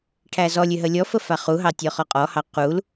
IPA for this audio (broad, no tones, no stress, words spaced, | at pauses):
ʈʰæzɔlʲʏ ɦəlʲɔfə faχuɦɑ tʲɔχɔqʼɔhɑ qul